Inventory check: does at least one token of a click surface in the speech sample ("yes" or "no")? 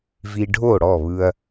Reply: no